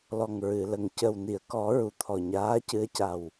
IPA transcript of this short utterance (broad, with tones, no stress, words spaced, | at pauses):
lɔ˨˩ŋɹɨ˨˩˨lə˨˩ŋ cə˨˩wni˨˩˨ə̯kɔ˨˩˦ ɹu˨˩t̪ʰɔ˨˩ ɲaː˧˥cɨ˧˥ə̯ca˨˩w